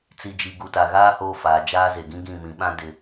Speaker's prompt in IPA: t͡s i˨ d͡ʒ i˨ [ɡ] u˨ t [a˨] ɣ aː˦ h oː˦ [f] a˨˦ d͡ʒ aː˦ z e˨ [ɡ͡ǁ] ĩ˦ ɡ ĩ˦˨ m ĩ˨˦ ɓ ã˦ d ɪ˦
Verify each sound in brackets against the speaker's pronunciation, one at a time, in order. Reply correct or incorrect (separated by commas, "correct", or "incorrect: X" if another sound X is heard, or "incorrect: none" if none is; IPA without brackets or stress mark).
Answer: correct, correct, correct, incorrect: ɡ